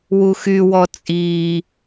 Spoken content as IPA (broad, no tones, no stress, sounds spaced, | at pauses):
w u x y w ɔ t͡sʼ iː